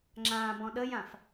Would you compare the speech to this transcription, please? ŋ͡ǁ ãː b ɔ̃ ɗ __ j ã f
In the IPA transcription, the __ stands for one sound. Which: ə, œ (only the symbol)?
ə